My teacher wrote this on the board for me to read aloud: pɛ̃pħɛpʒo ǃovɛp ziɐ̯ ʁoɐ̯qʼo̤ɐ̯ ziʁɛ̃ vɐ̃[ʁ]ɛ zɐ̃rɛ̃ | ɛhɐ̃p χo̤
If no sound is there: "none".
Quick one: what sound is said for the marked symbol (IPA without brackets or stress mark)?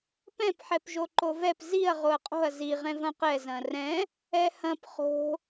q